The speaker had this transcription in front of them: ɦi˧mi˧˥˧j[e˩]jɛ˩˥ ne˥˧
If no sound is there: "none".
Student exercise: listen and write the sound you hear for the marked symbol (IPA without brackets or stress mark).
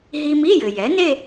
ɘ˩